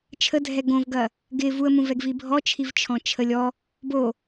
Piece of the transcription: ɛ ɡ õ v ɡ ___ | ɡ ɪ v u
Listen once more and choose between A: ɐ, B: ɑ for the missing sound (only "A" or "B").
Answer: A